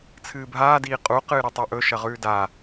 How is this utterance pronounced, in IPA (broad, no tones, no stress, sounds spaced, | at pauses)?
t͡sʰ ɨː bʱ aː d iː qʼ u q ɨː ɾ ɵ tˤ u ʔ ɵ ʃ ɐ ʁ ʉː d a